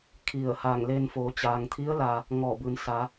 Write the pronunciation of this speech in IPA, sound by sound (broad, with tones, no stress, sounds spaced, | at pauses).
kʰ i˧˩ ə̯ h aː˧˩ ŋ l eː˧ n f oː˩˧ t͡ɕ aː˩ ŋ t̪ʰ i˧˥ ə̯ l a˩ | ŋ ɔː˧˩ b ɯː˩˧ n s a˩˧